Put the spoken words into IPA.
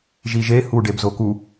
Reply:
ʒ i ʒ e h u ɖ e b z o k u

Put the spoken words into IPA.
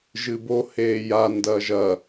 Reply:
ʒ ɨ b o h eː j a n d ɐː ʒ ɐ

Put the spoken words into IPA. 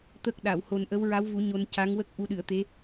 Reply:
t̪ ə˦˥ k̚ ɗ a˨˩˨ w h o˨˩ n ʔ ə˧˥ w ɹ a˧˥ w v u˨˩˦ ɲ o˧ n c a˧˥ ŋ w ə˦˥ k̚ ʔ u˧ ɗ ɨ˨˩˨ ə̯ t̪ e˧˥

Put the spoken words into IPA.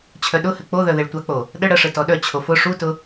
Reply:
t͡ɕʰ œ ɗ ʊ h ɘ k͡p o ð œ ð e ɭ tʷ a k͡p o | ɗ ə ɽ ə ʂ ɘ t ɔ ɗ œ t͡ɕʰ o f ʊ ʂ u t ʊ

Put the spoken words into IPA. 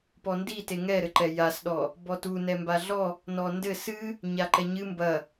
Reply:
p ɔ n d i t e ŋ ɛ ɾ ɘ ǃ ɛ j a s ɗ ɔ | b ɔ t u n ɛ m b a ɮ ɔ | n ɔ n d ɘ s ɨ | ɲ a ǃ ɛ ɲ ɨ m b ɐ

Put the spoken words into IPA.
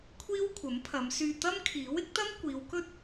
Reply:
kʷʰ iː˥ w kʷʰ ɐ˨˥ m pʰ ɐ˨˧ m s yː˧ t̪ ɐ˥ m kʰ iː˨˥ w ɪ˨˥ k̚ t̪ ɐ˥ m kʷ iː˨˧ w k ɵ˥ t̚

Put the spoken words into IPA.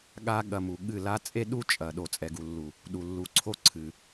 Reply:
ɠ a˦ ɠ ɐ˧ m u˨ ɠ ɨ˦˨ l a˦ t͡sʼ e˦ ɗ u˦ t͡ʃʼ ɐ˨ ɗ o˨ t͡sʼ ɛ˨ ɡ u˨ lː u˨ | ɗ u˨ lː u˨˦ ǀʰ o˦˨ ǀʰ ɨ˨

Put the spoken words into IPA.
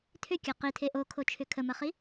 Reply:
tʰ ʏ kʲ ɐ q i tʰ e ʔ o kʰ o t͡ʃʰ ʏ kʰ ə m ɐ χ i

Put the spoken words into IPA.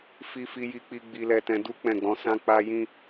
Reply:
f i˧ f i˧ j i˧ k͡p i˧ ɡ͡b i˧ l ɛ˧ t ɛ̃˧ d u˦ k͡p ɛ̃˦˨ ɡ͡b ɔ̃˨˦ s ã˦ k͡p a˦ j ĩ˦

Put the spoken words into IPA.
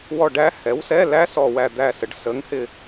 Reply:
w ɔ˦˨ ɖ æ˦˥ h ɛ˩˥ w s ɛ˧˥˧ l æ˦˥ s ɔ˦˨ w æ˦˨ d̪ æ˦˨ s ə˩˧ ɖ s ə˩˥ ŋ h ɪ˦˨

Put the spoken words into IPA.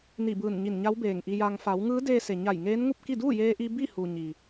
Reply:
n i˧˩ b ɯː˧˩ n ɲ i˧˩ n ɲ a˧˥ w b eː˧˩ ŋ ʔ i˧ j aː˧ ŋ f a˩˧ w ŋ ɯː˧˥ d eː˧ s e˩ ɲ a˧˩ j ŋ eː˧˥ n ŋ u˥˨ p̚ k i˥˨ d uː˥˨ j eː˧ ʔ i˧ b i˥˨ h u˩ ɲ i˩

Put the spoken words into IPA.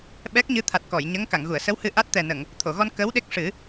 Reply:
ɓ ɛ˦˥ k̚ ɲ ɨ˧˥ t̪ʰ a˨˩ t̚ k ɔ˨˩˨ j ɲ ə˧˥ ŋ k a˨˩˨ ŋ ɣ u˨˩˨ ə̯ s ə˧˥ w h ɨ˧ ʔ a˦˥ t̚ t̪ ɛ˨˩ n ə˨˩˨ ŋ | t̪ʰ o˨˩˨ ɣ ɔ˧ n k ə˧˥ w ɗ e˦˥ k̚ ʂ ɨ˨˩˦

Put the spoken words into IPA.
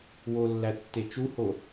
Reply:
w o lː æ tː e t͡ʃ u h o

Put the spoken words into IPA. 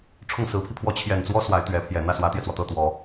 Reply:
ʈ͡ʂʰ ʊ˥˩ ŋ s ɹ̩˧˥ pʰ i˧ pʰ w ɔ˥˩ t͡ɕʰ j ɛ˨˩ n t͡s w ɔ˥ s w a˧˥ ɪ̯ t̪ ɥ ɛ˧˥ pʰ j ɛ˨˩ n̪ ä˥˩ s w ä˧˥ t̪ j ɛ˧ t͡s w ɔ˩ t̪ ɤ˥˩ t̪ w ɔ˨˩˦

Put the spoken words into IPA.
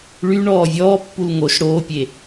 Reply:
ɭ y ɳ ɔː vʲ ɔː pː u l ŋ o ʃ ɽ oː pʲ e

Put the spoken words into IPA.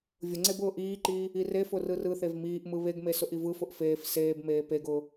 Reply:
vʲ ʊ ŋ͡ǀ e b ʊː ʔ iː ǃ iː | i r e f ʊ r ɯ r ɯ θ e v m iː ʔ m ɯ β e ɡ m e s ʊ ʔ i v ɯ f ʊ ʔ f eː f s eː b m eː p e ɡ ʊː

